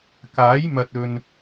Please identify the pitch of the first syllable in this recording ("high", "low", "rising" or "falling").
rising